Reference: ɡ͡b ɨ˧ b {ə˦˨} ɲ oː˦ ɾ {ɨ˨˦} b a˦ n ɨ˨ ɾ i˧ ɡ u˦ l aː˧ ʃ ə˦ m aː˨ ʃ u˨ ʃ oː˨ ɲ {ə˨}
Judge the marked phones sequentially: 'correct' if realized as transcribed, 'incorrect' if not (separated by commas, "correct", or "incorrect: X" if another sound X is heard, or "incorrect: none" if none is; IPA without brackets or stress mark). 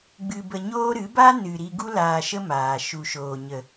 incorrect: ə˧, correct, correct